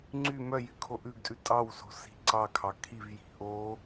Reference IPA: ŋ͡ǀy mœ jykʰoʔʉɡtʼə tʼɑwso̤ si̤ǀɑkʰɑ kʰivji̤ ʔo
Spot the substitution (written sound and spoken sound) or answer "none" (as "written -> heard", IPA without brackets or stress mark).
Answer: ə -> ʉ